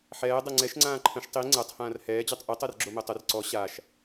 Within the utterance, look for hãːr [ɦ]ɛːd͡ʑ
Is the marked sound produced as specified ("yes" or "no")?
no